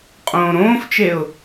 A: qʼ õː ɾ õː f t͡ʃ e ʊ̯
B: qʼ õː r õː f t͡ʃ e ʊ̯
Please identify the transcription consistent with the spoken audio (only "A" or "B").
A